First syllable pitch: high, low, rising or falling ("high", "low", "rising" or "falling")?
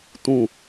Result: falling